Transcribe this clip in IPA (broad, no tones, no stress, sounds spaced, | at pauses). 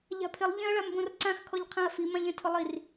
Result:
ʎ a̤ pʰ ɪ lˠ ʎ ẽ ɐ̯ ɭ a m b õ r ǀ ã x kʰ ɔ ʎ qʰ ẽ ɐ̯ f i m ã ʎ ẽ tʰ ʊ lˠ i r